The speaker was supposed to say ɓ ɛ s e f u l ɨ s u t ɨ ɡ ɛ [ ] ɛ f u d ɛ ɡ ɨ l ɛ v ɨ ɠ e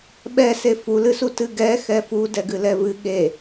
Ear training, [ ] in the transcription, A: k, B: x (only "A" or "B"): B